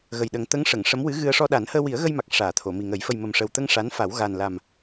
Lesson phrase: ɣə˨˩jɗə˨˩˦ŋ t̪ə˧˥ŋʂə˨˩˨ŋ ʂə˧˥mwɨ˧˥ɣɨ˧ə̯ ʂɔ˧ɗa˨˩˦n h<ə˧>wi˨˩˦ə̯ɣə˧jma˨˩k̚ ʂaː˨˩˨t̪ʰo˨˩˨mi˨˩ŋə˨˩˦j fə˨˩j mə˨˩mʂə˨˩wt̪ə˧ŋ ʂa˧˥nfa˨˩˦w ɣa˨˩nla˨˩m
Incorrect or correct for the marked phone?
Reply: incorrect: əː˧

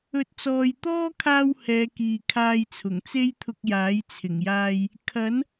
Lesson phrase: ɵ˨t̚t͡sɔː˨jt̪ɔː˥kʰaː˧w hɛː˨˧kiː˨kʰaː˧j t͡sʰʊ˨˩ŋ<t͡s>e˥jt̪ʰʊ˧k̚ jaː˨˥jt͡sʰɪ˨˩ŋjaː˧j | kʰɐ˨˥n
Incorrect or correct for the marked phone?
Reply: correct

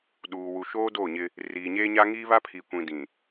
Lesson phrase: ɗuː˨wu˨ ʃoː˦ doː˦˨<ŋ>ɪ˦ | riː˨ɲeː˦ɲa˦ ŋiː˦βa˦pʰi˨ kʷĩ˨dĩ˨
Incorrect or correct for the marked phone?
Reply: incorrect: ɲ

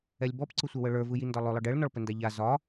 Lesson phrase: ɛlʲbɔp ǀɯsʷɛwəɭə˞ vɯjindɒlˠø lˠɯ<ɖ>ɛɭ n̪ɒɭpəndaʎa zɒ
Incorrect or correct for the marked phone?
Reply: correct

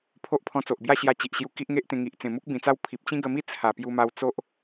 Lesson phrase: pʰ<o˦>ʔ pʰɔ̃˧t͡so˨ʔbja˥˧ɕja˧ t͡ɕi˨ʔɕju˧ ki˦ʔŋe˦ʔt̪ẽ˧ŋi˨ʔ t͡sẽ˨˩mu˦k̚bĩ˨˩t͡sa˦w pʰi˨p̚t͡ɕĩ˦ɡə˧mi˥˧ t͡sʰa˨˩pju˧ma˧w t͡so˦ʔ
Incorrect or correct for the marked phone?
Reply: correct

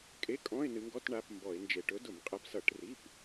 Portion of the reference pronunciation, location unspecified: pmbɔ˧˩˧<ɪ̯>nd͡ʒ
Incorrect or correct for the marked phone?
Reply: correct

